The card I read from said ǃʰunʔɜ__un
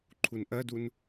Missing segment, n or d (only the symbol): d